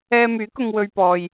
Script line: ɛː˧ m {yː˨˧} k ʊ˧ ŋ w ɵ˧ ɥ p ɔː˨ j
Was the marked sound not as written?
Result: yes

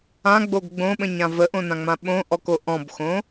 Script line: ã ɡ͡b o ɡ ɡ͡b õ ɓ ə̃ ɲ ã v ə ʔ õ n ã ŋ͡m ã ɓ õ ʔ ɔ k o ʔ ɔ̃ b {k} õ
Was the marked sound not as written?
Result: yes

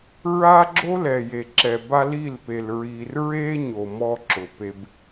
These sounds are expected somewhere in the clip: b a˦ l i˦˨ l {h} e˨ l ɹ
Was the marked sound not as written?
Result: yes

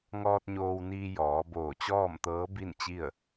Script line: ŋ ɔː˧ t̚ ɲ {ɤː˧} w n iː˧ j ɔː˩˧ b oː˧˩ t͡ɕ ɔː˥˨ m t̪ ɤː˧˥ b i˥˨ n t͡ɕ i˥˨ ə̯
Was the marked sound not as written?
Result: yes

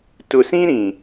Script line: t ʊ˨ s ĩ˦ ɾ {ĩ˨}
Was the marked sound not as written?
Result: no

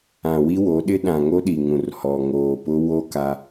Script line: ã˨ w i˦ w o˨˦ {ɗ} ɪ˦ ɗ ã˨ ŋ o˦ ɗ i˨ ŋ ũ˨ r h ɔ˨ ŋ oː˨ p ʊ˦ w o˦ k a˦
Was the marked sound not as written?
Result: no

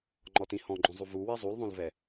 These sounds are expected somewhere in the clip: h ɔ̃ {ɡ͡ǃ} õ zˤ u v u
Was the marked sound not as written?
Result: no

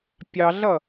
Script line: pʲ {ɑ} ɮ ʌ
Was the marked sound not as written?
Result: no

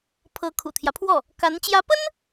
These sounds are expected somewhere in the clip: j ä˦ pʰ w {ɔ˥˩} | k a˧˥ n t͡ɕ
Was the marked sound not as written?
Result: no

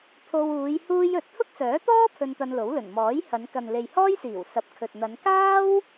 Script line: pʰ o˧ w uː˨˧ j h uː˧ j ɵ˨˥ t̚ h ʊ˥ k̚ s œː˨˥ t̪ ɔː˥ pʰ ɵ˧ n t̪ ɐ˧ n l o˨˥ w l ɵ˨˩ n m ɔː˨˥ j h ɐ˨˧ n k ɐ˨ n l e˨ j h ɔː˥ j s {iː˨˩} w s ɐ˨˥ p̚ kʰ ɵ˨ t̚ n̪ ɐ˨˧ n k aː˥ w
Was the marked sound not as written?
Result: no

